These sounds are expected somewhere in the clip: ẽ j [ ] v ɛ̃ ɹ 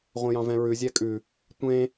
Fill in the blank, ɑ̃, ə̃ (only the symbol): ɑ̃